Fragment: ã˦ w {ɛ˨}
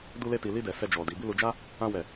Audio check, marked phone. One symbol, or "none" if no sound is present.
ɛ˦˨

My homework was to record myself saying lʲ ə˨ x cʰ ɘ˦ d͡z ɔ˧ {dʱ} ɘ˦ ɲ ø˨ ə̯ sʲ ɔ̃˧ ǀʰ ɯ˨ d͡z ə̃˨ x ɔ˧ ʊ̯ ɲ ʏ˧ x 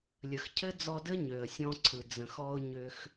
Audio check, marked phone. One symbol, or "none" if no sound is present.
d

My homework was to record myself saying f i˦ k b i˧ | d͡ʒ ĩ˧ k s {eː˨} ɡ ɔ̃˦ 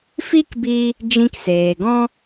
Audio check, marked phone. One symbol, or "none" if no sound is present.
eː˨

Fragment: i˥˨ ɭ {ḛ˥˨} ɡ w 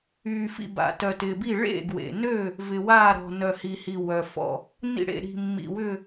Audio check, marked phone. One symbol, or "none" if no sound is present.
ḛ˥˨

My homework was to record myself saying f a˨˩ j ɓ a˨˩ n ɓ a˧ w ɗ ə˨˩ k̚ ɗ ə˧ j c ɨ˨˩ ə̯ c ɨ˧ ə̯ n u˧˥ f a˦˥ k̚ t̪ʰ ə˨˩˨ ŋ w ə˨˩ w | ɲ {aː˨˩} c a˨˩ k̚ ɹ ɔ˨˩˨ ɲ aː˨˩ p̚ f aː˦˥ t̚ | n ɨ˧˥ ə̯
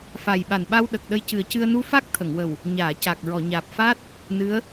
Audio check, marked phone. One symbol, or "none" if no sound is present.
aː˨˩˨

